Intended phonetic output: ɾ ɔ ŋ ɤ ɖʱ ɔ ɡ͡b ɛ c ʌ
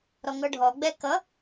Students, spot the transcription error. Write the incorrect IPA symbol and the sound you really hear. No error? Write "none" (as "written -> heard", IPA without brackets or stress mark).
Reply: c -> k